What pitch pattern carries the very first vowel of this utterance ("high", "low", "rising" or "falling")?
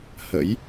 rising